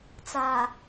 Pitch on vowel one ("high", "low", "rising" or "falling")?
low